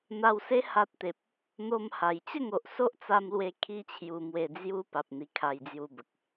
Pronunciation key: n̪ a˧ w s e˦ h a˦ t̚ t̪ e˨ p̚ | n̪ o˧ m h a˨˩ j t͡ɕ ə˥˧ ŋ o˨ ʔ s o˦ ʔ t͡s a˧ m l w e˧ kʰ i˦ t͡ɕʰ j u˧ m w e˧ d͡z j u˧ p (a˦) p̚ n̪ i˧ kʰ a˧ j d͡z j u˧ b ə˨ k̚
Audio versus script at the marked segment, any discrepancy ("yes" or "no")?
yes